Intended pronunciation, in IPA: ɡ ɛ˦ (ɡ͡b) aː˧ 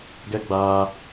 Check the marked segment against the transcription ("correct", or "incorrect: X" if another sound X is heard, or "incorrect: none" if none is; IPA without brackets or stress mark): correct